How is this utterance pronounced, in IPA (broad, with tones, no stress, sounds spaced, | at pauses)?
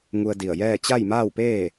ŋ u˧ ə̯ d i˧˩ ə̯ j ɛː˥˨ t͡ɕ a˥˨ j m aː˥˨ w p eː˥˨